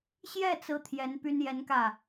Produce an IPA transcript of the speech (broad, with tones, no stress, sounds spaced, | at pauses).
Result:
ɕ j ɛ˥˩ t͡s ɹ̩˥ t̪ʰ j ɛ˧˥ n p y˥ n j ɛ˧˥ n k ä˥˩